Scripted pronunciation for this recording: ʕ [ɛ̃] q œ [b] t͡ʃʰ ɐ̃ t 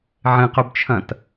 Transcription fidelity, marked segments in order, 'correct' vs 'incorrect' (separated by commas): incorrect, correct